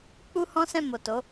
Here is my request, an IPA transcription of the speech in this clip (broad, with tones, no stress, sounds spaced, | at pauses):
k͡p u˦ h ɔ̃˦ s ɛ̃˦˨ m o˨ t o˨˦